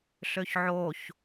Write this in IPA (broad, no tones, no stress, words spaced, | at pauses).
ɬøçʕoç